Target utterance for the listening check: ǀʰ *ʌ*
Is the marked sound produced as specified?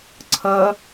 yes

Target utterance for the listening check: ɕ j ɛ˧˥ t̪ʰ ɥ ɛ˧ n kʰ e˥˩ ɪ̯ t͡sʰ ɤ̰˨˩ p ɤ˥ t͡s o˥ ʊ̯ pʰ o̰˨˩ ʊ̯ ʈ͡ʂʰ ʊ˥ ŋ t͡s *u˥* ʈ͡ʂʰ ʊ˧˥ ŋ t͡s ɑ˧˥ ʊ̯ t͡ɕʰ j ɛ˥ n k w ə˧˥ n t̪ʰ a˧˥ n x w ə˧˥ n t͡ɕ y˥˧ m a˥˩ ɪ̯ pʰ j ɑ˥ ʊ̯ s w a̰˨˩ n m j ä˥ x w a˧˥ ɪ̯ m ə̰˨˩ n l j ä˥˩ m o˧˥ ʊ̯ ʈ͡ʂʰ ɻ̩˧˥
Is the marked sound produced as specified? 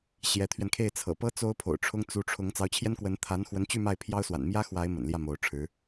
no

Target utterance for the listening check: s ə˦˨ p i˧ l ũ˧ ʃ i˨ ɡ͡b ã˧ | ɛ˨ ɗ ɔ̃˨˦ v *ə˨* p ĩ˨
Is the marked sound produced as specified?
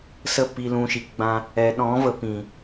yes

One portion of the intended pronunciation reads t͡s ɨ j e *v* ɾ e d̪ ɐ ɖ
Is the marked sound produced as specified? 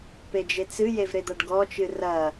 yes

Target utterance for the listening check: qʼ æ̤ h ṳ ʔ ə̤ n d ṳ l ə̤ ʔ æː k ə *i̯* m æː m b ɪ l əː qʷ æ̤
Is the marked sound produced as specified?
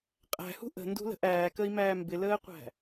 yes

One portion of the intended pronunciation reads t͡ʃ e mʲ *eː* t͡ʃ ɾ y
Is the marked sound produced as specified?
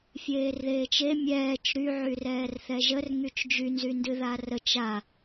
no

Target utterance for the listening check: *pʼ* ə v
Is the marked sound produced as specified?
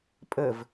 yes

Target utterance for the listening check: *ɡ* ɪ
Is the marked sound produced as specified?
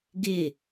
yes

